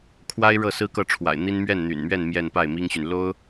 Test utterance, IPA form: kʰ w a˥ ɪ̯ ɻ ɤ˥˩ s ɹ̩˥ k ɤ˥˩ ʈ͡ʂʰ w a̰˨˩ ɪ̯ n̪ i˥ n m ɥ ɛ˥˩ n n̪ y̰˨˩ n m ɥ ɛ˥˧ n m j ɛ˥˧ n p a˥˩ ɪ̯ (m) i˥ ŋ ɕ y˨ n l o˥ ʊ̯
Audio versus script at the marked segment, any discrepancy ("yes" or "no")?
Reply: no